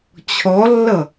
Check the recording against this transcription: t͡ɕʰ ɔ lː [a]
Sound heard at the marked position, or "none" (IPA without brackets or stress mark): ʌ